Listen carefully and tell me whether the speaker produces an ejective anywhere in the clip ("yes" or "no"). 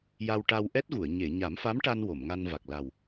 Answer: no